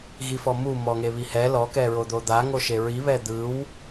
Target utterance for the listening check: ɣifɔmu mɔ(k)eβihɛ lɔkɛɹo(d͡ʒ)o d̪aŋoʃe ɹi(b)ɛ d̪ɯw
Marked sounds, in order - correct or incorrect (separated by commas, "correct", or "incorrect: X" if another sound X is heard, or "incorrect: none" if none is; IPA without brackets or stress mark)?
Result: incorrect: ŋ, incorrect: d̪, incorrect: β